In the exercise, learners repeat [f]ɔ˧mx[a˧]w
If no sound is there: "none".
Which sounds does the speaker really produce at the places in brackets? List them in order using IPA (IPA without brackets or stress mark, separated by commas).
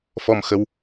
f, ə˧